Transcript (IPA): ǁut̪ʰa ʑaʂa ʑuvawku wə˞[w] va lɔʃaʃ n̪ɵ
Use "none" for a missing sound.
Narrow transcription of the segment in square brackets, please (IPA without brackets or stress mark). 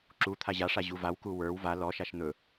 w